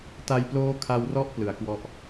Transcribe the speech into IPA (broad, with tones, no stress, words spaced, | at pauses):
ta˧jploː˦˥kʰa˧wrɔ˦˥ʔ plɯ˨˩a̯kwɔ˥˩ʔ